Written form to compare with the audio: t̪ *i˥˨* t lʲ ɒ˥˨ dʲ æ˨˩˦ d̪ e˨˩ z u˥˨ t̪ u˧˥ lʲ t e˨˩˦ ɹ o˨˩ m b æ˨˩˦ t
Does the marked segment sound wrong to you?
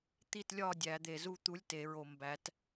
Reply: no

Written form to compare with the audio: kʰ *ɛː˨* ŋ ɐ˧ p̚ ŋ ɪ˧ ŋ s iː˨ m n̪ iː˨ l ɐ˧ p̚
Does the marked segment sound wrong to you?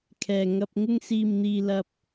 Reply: no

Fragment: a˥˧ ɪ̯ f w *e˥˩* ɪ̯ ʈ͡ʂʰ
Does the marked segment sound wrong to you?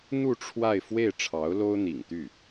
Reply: no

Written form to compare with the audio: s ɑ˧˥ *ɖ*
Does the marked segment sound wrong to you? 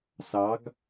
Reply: yes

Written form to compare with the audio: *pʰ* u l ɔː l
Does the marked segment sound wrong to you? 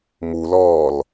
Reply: yes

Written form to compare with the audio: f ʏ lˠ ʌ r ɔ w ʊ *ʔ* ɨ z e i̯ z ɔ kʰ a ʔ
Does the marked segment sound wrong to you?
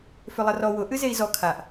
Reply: no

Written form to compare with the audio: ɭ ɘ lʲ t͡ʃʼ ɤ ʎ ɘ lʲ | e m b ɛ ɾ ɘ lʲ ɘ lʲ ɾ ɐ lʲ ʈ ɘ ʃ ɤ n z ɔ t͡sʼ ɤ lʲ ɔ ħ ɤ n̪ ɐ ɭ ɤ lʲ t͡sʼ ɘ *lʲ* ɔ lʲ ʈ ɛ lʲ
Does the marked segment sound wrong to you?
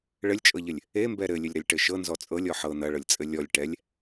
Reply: no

